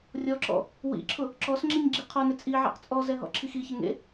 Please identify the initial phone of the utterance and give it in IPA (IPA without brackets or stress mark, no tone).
rʲ